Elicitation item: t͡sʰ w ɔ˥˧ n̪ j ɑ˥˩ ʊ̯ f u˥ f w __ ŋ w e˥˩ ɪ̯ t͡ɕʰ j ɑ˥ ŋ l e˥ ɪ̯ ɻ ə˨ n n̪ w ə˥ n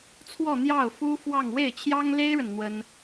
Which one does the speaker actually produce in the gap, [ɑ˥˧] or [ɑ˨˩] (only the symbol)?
ɑ˥˧